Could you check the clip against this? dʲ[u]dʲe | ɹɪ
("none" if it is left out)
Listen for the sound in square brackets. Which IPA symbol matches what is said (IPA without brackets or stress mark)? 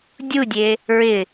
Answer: u